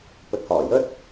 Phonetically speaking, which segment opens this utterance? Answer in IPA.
p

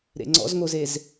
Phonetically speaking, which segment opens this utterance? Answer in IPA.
ɾ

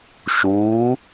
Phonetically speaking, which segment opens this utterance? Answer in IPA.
ʃ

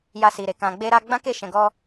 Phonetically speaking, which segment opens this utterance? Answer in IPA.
j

